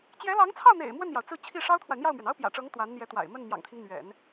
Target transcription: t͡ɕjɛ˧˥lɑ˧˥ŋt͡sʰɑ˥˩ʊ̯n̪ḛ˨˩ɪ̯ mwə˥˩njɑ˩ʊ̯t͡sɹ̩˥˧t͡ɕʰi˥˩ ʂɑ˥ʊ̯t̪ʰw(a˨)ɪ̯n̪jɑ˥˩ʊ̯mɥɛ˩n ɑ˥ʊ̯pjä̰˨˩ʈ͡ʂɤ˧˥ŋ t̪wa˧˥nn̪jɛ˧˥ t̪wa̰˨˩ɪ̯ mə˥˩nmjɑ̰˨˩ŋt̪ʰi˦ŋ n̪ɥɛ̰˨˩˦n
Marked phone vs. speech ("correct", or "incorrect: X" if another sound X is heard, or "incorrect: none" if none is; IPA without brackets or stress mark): correct